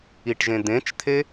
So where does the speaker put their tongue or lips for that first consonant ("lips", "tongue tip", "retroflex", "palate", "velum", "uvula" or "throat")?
retroflex